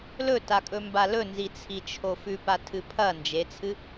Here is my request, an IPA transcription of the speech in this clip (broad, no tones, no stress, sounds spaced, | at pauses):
l ɵ t a kʼ ɵ m b a l ɵ n z i t͡sʰ i t͡ʃʰ o f ʉ p a tʰ ɨ pʰ ɐ n d͡ʒ e t͡sʰ ɨ